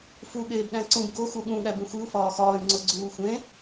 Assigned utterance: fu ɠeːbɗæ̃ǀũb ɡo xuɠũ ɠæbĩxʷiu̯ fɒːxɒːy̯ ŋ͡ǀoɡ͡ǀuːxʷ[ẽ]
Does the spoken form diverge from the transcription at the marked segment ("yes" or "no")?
no